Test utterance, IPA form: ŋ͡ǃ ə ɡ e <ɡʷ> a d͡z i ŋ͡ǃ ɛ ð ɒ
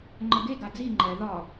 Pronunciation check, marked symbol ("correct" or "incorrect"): incorrect